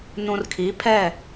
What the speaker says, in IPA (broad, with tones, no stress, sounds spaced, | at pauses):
n ũ˨ r kʰ i˨˦ pʰ ɛ˦˨